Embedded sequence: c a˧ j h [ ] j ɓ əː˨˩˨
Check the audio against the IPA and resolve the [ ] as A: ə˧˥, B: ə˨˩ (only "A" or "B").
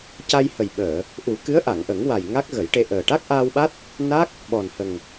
B